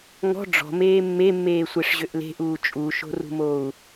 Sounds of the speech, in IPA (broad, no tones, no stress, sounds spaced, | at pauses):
ŋ ɔ̤ ɖ͡ʐ ɔ̤ m eː mː e mː eː sʷ e ʂ ʑ ø ʔ l e̤ ʔ uː t͡ʃʼ u ʃ o̤ r ṳ m oː u̯